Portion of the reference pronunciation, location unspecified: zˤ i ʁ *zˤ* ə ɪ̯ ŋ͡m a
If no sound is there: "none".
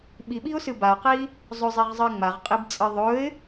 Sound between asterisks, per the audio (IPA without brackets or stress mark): zˤ